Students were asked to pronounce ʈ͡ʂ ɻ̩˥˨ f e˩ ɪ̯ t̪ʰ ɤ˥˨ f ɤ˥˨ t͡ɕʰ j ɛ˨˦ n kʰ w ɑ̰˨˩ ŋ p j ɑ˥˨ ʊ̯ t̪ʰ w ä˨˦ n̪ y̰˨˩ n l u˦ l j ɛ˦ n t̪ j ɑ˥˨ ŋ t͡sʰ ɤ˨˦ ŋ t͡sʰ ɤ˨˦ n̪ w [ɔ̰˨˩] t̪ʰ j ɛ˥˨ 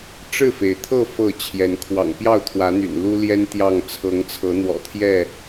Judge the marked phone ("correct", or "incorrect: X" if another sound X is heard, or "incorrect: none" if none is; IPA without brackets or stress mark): correct